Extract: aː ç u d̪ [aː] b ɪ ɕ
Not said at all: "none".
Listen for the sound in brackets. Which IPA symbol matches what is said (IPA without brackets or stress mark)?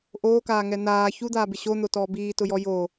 aː